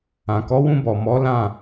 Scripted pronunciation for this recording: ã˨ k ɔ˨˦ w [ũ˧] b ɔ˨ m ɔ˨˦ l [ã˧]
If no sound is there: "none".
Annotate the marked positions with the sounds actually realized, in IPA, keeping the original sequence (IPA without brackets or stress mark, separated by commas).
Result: ũ˧, ã˦˨